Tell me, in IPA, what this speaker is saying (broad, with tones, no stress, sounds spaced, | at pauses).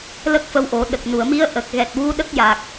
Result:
l ə˦˥ k̚ f ə˧ w ʔ o˨˩˦ ɗ ə˨˩ k̚ n u˨˩˨ ə̯ m i˧˥ ə̯ ʔ ə˨˩ k̚ ɣ ɛ˨˩ t̚ w u˧˥ ɗ ə˦˥ k̚ j a˨˩ k̚